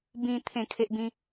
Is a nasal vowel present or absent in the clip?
present